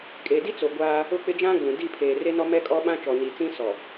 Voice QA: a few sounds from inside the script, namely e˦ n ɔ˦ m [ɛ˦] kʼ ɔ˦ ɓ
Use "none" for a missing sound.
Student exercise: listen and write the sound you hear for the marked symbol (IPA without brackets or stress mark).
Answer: ɛ˦